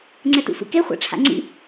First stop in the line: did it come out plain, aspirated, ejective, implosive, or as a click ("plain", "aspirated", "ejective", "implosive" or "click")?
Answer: click